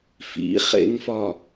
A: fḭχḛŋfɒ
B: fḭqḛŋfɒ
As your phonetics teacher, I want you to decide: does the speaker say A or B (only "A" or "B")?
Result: A